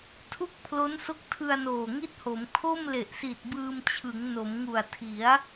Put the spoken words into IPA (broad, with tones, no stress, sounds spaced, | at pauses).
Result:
tʰ u˥˩ k̚ pʰ l o˦˥ n s o˦˥ k̚ tʰ ɯ˧ a̯ n oː˨˩ ŋ i˥˩ t̚ h o˩˦ m kʰ o˥˩ m l e˨˩ ʔ s i˨˩ t̚ b ɯː˧ m t͡ɕʰ ɯ˩˦ ŋ n o˩˦ m ŋ u˨˩ a̯ tʰ i˩˦ a̯